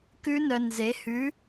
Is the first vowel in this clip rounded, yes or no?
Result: yes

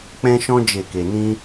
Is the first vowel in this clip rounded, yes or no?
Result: no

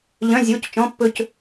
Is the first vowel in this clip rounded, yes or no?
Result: yes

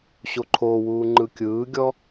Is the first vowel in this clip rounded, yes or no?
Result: yes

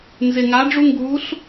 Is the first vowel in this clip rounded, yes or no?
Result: no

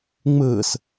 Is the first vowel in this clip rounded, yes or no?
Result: no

